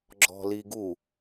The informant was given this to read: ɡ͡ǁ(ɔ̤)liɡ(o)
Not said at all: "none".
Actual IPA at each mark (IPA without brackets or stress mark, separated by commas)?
ɔ̤, u